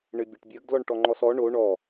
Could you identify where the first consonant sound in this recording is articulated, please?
retroflex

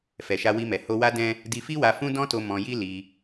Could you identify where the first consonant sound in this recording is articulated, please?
labial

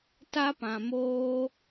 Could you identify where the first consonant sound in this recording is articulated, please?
alveolar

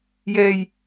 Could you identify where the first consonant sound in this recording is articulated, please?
palatal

